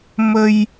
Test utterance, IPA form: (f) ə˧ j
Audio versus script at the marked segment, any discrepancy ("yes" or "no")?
yes